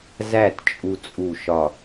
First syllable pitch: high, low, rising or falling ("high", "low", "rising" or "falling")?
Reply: falling